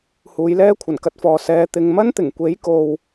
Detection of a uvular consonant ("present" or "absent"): absent